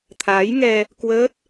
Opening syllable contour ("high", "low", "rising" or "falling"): rising